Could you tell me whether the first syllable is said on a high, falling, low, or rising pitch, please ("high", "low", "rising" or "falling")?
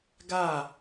falling